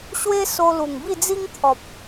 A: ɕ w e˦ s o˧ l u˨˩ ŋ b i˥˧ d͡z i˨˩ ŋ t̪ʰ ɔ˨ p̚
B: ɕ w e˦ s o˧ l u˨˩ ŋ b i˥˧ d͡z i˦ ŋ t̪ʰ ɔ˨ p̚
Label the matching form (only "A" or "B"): B